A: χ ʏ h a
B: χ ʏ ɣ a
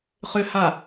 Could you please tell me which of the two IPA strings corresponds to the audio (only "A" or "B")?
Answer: A